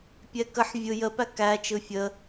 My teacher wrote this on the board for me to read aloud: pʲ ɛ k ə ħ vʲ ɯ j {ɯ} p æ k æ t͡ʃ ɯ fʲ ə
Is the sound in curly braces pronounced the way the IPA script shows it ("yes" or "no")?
no